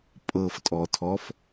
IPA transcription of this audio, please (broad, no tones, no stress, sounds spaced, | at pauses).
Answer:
pʼ ɤ f tʼ ɔ tʰ ɔ f